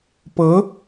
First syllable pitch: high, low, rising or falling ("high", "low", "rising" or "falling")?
rising